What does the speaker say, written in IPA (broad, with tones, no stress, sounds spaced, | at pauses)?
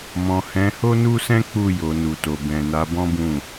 m ɔ̃˨ h ɛ̃˨˦ h o˦ n u˦ s ɛ̃˦ k͡p u˦˨ j o˨ n u˨ t o˨ b ɛ̃˨ n a˨˦ b ɔ̃˦ b ũ˦˨